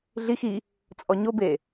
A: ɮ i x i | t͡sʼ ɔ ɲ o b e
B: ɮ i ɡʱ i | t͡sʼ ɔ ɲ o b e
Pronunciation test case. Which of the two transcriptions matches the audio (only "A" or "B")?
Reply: A